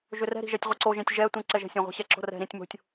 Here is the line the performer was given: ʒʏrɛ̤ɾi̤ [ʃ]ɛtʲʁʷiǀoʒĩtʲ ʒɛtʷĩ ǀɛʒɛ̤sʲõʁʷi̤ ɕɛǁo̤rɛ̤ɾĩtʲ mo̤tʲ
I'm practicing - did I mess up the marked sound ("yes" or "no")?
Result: yes